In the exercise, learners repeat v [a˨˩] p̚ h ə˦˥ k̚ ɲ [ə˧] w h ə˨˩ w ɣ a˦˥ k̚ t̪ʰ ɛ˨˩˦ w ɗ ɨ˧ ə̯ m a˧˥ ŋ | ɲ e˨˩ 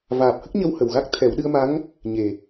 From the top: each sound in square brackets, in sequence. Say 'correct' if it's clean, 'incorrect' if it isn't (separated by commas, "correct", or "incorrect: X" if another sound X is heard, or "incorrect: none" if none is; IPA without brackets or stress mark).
incorrect: aː˨˩, correct